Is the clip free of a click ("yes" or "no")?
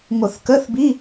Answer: yes